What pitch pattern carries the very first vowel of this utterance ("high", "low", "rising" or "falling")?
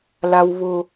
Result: high